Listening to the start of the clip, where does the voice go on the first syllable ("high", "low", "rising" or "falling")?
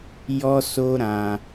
high